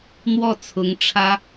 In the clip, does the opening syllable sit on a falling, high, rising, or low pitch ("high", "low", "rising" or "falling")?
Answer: falling